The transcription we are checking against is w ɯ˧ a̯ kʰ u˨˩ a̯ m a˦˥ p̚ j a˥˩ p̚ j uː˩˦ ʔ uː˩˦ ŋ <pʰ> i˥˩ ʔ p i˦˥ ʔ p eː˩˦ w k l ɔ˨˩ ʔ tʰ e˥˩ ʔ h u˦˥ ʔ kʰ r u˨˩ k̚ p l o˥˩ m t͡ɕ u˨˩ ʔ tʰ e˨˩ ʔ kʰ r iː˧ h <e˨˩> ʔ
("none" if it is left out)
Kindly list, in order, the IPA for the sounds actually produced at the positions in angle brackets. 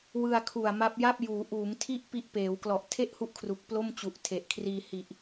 tʰ, i˨˩

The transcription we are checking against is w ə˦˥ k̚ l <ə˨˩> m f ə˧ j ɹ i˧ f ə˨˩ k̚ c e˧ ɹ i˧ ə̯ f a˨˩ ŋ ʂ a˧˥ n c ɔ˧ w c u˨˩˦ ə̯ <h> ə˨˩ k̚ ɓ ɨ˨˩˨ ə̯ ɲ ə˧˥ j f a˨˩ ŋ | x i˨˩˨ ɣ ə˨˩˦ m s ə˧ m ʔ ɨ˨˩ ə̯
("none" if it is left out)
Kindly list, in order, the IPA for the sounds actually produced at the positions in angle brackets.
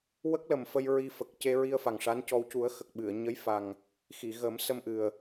ə˨˩, x

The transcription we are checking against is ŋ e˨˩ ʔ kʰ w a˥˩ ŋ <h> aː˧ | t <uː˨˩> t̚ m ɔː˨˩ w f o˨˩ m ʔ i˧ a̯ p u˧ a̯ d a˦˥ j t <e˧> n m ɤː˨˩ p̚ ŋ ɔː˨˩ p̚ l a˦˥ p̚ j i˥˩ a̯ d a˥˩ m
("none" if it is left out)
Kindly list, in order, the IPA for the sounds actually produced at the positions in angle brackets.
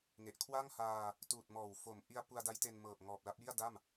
h, uː˨˩, e˧

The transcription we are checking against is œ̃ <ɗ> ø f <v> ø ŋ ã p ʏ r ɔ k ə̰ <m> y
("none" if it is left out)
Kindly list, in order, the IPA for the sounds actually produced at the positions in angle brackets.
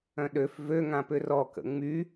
ɗ, v, ŋ͡m

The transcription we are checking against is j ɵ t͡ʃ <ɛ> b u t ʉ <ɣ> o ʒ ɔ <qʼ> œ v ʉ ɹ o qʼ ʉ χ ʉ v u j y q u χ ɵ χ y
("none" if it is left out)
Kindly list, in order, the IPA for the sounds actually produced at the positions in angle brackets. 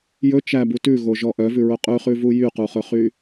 æ, ɣ, ʔ

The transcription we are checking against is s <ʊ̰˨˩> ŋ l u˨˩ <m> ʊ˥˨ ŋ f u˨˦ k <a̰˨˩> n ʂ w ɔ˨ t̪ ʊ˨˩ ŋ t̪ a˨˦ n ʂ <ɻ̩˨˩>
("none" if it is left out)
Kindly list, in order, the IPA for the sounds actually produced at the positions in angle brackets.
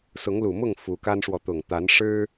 ʊ˨˦, m, a˦, ɻ̩˦

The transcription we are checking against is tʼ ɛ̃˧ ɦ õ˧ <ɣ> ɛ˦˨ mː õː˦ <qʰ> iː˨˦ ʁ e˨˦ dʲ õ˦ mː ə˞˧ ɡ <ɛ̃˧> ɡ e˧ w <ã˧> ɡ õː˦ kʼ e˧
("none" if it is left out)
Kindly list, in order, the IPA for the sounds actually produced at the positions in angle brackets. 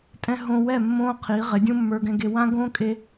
w, qʰ, ɛ̃˧, ã˦

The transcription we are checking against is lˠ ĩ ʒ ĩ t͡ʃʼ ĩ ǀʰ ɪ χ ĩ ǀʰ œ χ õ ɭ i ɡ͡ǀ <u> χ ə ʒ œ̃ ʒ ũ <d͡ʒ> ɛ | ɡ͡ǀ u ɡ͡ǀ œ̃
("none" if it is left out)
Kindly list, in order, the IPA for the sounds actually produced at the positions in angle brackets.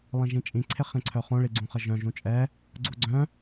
ũ, t͡ʃʼ

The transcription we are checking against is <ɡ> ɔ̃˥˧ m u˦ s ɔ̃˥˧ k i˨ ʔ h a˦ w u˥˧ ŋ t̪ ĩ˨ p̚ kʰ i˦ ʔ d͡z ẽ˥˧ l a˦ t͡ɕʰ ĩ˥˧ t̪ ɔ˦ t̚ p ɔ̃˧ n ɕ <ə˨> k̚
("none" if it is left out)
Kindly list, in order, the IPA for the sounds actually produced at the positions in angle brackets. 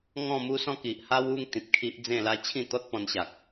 ŋ, a˨

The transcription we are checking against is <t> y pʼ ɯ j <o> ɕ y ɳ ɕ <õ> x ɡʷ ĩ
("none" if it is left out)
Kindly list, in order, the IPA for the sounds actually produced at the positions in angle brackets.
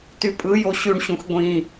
t, o, ũ

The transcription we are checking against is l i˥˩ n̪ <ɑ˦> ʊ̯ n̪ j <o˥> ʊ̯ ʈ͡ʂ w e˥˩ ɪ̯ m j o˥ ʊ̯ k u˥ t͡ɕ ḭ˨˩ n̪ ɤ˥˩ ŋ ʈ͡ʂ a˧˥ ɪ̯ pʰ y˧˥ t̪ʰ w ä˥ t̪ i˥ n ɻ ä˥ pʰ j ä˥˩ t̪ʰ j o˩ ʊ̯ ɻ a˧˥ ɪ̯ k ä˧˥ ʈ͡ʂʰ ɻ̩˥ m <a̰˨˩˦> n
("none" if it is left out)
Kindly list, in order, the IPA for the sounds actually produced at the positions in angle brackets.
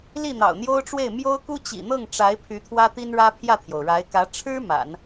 ɑ̰˨˩, o˥, a̰˨˩˦

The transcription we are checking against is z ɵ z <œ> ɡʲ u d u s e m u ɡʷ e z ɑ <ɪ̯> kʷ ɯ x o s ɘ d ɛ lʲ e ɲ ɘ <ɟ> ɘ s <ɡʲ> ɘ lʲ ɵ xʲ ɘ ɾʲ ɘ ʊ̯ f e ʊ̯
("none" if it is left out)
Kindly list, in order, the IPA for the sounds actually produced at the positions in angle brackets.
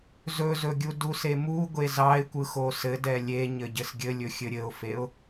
ɵ, ɪ̯, ɟ, ɡʲ

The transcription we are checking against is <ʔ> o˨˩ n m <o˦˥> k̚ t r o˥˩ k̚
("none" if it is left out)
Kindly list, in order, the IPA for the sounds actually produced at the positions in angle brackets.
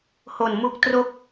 h, u˦˥

